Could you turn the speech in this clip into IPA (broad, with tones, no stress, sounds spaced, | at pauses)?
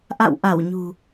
ʔ a̰˧˨ w ʔ a˧˩ w ɲ ṳ˨˩